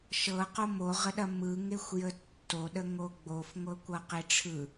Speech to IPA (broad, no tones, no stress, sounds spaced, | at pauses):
ʃ ɤ q o m o ʁ ə ɗ ɐ m ɯ ŋ e xʷ j ə tː o ɗ ə ŋ o ɡ͡b o f ŋʷ ɤ kʷ ʌ q e ʈ͡ʂʰ ɯ